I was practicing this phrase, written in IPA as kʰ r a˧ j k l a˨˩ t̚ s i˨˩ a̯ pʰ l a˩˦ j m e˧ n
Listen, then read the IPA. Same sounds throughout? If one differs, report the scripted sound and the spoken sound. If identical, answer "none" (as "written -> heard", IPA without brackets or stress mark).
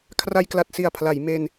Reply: none